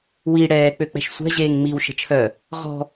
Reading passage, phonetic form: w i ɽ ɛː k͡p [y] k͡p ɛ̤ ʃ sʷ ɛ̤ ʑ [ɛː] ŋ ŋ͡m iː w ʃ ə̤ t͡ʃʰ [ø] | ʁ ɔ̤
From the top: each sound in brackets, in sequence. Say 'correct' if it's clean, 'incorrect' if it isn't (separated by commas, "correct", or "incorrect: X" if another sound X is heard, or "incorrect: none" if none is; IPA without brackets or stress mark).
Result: incorrect: ø, incorrect: eː, incorrect: œ